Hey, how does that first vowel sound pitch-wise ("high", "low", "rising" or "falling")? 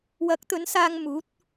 rising